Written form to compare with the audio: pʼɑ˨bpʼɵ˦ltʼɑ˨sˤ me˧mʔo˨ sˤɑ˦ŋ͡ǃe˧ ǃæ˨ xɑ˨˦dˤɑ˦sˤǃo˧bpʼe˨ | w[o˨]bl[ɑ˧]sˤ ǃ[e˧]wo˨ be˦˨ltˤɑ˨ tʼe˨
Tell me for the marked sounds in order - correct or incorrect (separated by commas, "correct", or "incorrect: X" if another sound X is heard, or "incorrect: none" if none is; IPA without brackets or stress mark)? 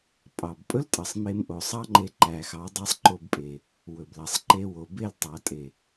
incorrect: ɵ˨, incorrect: ɑ˨, correct